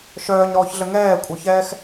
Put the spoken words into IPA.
ʃ œː ɲ ɾ ɔː ç ɮ ə ŋ ɛː kʷʼ œ ç ɛː x

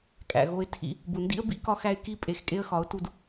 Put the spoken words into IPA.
kʼ æ̰˨ ɣ o˧ ɪ̯ tʰ ḭ˧ | b u˨ n d ḭ˦ ə̯ b ḭ˦ k ɒ˦ x æ˦ ɪ̯ k i˦ pʼ e˨ x kʼ e˧ ə̯ x ɒ˨˦ ʊ̯ t u˧ d

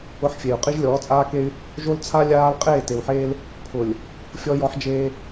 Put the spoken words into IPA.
ʊ˦ ħ fʲ e˨ u̯ qʼ i˦ ʒ lʲ ɔː˨˦ t͡sʼ aː˦ k e˦ y̯ | ʒ o˦ l t͡sʰ a˦ lʲ aː˦ l qʼ eː˦˨ t e˨ w ħ eː˦ l | pʰ ʊ˨ lʲ | fʲ ɔ˦ j ɔ˦ ħ d͡ʒ eː˦

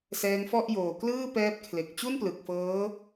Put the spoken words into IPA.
s ɛː˦˥ ŋ f ɔ˥˩ ʔ j oː˨˩ k l ɯː˥˩ p ɛː˦˥ p̚ kʰ l e˨˩ k̚ t͡ɕ u˥˩ n p l ɯ˨˩ k̚ f ɤː˦˥

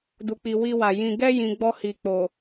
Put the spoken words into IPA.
d u˨ k͡p i˨ w i˧ w a˨ j ĩ˨ ɡ ɛ˧ j ĩ˧ ɡ͡b ɔ˧ h i˨ k͡p o˨

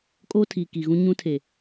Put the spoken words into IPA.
kʼ oː˦ tʰ iː˨ k i˨ ɣ ũ˦ ɲ ũ˦ tʰ e˨

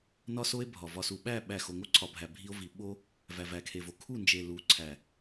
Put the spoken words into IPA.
n ɒ˦ s o˦ e̯ bʱ ɒ˨ v ɒ˨ s u˨ ɓ æ˦˨ ɓ æ˦˨ x o˨ ŋ o˦ ǀʰ ɒ˨ bʱ æ˨ bʱ i˦ o̯ v i˨ ɓ o˦ | v æ˨ v æ˨ kʰ e˨ v o˨ kʰ u˦˨ n d͡ʒ e˨ l u˨˦ ǀʰ æ˨

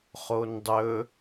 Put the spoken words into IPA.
χ o n dˤ ɵ

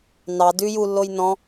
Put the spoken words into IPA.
n ɑ d ʉ j u lː o j n ɔ̃

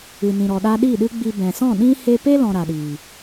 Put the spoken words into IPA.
ɨ˨ n ĩ˨ ɾ ɔ˨ ɗ a˦ ɗ iː˦˨ ɗ ɨ˦ ɡ͡b i˧ b ɛ̃˨ s ɔ̃˦˨ ɗ ĩ˦ h eː˧ p e˦ l ɔ̃˧ ɾ a˨ ɗ iː˨

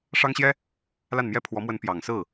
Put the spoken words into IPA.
ʂ ɑ˥ ŋ ɕ j ɛ˥ | l a˥˩ n m j ɛ˥ pʰ w ɔ˧˥ m w ə˧˥ n p j ɑ˨˩ ŋ s ɹ̩˥˩

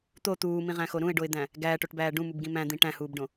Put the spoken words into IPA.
t̪ o t̪ uː m ĩ ʁ æ̃ x o ɾ ũ ɪ̯ ɖ o ɪ̯ d̪ æ̃ | ɡ æː ʈ o ʈ b æː ɖ ũ m u b ɡ ĩ m æ̃ d̪ ĩ ʈ æ̃ h uː b ɖ õ

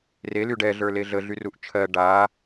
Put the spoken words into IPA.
r e l y ɖ ɛ ɮ ə˞ l e ɮ ə ɮ y r u ʔ t͡ʃʰ ɜ ɖ a

